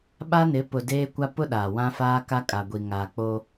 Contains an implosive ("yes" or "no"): yes